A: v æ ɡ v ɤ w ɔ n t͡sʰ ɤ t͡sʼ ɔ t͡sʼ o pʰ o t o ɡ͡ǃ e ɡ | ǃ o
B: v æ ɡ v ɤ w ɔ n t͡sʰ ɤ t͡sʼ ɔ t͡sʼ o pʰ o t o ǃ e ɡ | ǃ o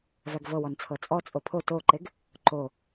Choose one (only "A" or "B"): B